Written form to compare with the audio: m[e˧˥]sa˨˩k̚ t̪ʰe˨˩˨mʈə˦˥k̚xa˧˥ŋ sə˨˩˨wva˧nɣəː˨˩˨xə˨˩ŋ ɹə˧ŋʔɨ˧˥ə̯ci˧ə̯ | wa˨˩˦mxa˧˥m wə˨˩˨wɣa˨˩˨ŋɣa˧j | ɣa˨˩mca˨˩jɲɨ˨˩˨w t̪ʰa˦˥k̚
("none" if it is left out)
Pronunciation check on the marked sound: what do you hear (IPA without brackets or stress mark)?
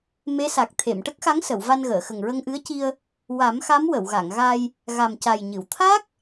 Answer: e˧˥